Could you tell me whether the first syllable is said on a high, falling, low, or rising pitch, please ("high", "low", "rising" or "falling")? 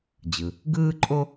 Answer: low